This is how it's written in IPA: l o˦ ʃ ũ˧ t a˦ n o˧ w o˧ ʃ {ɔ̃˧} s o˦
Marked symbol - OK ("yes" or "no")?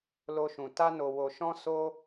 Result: no